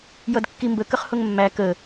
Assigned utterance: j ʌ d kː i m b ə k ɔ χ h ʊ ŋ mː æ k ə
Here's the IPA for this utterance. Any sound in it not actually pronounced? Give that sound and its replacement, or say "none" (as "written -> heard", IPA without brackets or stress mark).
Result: ɔ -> ə